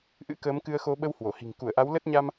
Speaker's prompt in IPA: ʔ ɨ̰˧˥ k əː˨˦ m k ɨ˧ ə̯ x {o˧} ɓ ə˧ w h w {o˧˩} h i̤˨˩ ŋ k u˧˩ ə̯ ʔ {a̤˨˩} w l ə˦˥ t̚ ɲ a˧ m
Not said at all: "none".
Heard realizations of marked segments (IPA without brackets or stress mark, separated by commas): o˧, o˧˩, a˨˦